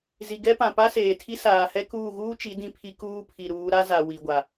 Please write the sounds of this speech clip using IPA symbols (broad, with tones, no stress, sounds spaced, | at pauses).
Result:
z i˨ ɡ ɛ˦ p ã˨ p a˦ s eː˨ tʰ i˦ s aː˨ h ɛ˦ k uː˦˨ ɣ uː˦ t͡ʃ i˨˦ d ĩ˦ pʰ i˦ k uː˦ pʰ i˨ ɾ uː˨˦ ɾ a˦ z a˨ w i˨ ɡʷ a˨